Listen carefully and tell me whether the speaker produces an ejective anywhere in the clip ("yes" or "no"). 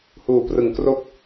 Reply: no